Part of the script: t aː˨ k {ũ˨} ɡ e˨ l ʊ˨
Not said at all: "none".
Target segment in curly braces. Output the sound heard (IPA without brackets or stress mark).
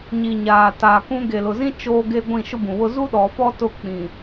ũ˦